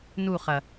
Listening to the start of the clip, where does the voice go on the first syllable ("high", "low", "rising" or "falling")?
falling